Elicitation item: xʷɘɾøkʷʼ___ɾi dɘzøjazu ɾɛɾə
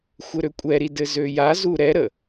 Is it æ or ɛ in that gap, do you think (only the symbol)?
ɛ